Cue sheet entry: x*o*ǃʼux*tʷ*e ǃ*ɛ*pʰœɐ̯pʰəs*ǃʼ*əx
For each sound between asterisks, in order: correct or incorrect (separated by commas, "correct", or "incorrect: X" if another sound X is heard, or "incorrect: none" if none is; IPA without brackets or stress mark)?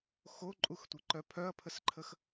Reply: correct, correct, incorrect: œ, incorrect: ǃʰ